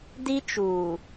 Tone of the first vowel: high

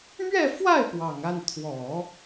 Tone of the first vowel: falling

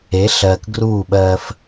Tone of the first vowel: rising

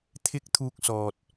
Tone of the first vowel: high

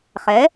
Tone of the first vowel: rising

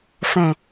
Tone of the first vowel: low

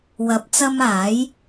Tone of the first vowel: rising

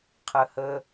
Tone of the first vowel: low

